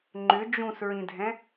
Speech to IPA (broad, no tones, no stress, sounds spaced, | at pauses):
ŋ͡ǃ ʏ d͡ʒ ũ s ɹ ĩ dʱ ɛ̃